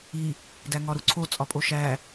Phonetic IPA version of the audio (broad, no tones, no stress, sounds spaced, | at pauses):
i | d æ ŋ ɒ ɾ u ǀʰ o t͡sʼ ɒ pʼ o ʃ æ